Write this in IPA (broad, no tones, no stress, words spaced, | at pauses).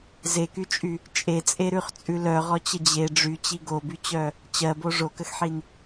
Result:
zekyt͡ʃʼy | t͡ʃʼet͡sʼeɾʉχt͡sʼʉ lœʁɔt͡ɕə d͡ʑe ɖ͡ʐyt͡ɕi ɡobyt͡ɕœ | t͡ɕɜbo ʐokəxħin